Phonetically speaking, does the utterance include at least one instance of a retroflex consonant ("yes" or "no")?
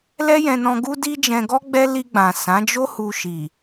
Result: no